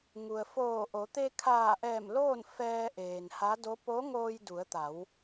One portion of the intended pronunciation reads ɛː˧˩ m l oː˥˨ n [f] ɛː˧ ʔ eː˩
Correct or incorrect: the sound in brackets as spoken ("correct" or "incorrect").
correct